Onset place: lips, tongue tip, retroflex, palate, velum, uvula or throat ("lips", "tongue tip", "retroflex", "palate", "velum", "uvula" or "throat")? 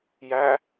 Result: palate